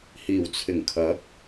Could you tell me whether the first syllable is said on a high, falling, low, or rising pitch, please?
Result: low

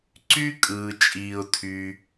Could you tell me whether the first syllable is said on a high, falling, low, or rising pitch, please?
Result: high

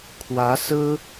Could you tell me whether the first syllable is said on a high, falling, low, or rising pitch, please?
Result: rising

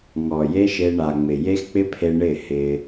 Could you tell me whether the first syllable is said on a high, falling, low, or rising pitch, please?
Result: low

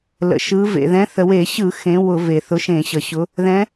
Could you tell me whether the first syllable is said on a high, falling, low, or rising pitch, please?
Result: low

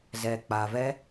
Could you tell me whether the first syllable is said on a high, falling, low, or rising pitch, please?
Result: low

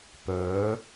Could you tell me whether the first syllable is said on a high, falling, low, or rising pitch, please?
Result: rising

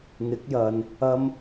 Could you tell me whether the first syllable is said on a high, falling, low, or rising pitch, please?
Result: rising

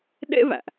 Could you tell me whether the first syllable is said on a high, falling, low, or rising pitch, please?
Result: high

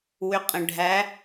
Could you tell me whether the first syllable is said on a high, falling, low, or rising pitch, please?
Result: rising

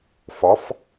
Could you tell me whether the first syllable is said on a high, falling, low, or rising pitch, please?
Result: rising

